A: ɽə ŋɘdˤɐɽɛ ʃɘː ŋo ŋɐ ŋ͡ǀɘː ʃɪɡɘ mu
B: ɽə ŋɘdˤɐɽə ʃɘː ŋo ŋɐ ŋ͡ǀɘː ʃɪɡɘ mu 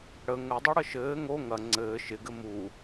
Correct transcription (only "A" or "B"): B